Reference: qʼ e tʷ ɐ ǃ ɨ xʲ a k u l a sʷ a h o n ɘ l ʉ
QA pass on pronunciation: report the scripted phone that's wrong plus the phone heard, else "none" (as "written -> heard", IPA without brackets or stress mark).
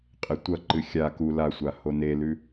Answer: ɘ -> e